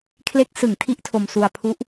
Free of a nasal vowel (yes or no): yes